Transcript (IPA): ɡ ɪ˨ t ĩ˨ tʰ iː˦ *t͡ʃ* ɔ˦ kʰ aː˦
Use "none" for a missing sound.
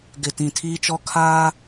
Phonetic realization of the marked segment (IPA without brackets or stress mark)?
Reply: t͡ʃ